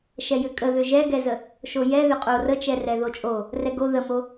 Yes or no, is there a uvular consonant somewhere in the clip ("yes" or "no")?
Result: yes